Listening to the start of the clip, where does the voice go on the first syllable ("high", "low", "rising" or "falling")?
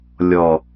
low